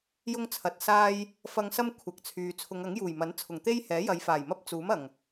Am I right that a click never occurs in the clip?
yes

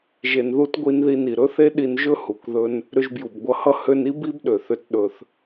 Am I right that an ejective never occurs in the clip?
yes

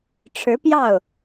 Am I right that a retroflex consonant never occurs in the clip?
no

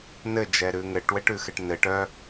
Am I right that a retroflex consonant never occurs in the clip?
no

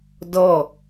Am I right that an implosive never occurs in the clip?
yes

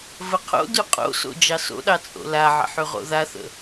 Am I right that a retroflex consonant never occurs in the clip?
yes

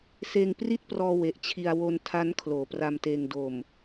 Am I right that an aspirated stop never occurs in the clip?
no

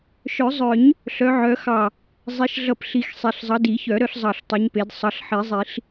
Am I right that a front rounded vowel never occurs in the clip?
no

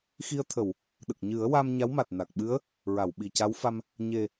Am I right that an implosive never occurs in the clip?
no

